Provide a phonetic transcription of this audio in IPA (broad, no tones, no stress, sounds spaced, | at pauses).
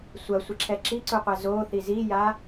sʷ ɐ sʷ ɘ ǁʰ ɛ ǁ i ǀ u qʷ ɛ z o θ i z i j a